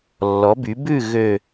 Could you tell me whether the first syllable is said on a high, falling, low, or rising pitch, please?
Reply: rising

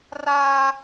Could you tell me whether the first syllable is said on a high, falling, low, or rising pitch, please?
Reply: high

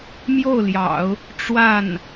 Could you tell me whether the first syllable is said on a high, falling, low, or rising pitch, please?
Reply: falling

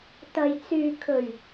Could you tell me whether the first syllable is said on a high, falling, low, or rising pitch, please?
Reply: low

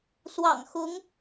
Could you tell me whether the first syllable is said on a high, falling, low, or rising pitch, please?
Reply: low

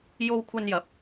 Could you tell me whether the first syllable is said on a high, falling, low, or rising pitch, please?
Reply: high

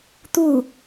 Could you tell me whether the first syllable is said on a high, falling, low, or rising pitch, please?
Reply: falling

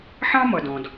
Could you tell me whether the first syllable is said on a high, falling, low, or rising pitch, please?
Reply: high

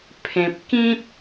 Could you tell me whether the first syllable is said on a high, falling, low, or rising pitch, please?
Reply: low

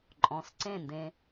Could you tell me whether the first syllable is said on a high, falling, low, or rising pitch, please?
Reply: rising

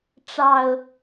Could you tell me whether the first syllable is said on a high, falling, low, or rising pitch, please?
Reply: low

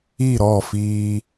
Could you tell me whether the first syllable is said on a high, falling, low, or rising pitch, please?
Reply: falling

